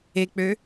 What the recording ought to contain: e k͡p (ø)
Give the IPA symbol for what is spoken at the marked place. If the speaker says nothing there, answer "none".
ø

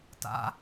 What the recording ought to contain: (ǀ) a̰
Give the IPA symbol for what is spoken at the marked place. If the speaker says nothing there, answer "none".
t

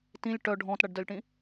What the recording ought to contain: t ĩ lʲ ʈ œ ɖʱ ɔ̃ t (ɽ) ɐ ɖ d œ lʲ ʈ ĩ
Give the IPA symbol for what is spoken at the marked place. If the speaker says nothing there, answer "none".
ɽ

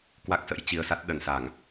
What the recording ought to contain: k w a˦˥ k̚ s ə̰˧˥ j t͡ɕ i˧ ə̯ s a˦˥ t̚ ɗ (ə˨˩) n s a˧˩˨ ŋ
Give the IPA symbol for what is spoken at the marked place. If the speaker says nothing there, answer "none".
ə˨˩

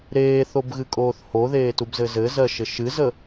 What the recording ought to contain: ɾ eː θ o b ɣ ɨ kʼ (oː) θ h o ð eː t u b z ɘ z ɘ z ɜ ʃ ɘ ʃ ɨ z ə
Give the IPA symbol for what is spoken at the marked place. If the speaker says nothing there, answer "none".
oː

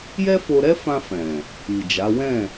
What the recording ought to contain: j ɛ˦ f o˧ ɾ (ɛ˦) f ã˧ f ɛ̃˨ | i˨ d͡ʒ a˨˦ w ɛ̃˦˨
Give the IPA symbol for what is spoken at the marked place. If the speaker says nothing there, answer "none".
ɛ˦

